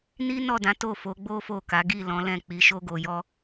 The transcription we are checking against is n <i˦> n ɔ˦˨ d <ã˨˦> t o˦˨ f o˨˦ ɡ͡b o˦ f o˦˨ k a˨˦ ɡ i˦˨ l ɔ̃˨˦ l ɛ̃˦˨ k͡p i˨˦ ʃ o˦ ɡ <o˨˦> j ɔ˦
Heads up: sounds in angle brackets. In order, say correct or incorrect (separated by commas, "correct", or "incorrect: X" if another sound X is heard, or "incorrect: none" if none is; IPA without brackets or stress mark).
correct, correct, incorrect: o˧